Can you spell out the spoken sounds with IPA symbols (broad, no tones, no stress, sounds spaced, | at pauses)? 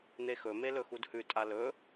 n̪ e x ɵ m e l ɵ x u d h ʉ tʼ a l ɵ